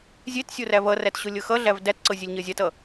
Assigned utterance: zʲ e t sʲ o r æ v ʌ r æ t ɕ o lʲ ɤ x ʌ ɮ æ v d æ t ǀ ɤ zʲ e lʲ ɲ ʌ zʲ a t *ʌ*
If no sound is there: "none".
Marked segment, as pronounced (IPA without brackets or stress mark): ʌ